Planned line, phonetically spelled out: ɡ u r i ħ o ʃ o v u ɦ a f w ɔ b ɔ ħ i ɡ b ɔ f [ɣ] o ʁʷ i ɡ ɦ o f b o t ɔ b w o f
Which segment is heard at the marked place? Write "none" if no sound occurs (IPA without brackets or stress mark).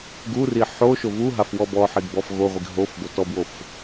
ɣ